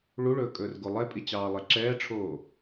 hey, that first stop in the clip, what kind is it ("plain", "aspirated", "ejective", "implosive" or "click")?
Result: ejective